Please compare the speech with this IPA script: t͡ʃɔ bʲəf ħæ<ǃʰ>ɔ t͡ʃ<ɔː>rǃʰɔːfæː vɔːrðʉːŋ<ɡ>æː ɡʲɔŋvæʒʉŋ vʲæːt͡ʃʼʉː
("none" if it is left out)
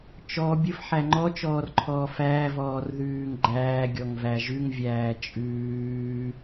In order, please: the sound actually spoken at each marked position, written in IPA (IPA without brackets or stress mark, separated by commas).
ŋ͡ǃ, ɔː, ɡ͡ǃ